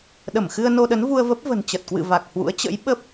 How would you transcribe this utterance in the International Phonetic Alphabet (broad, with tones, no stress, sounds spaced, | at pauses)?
ɗ ə˧˩ m x ɨ˧ ə̯ n o˧ ɗ ə˨˦ n v u˧ ə̯ v ə˦˥ p̚ v ə̤˨˩ n t͡ɕ ə˨˩ t̚ k w ɨ̰˧˨ v a˨˩ k̚ h w ṵ˧˥ ə̯ t͡ɕ ə̰˧˥ j ɓ ə˦˥ p̚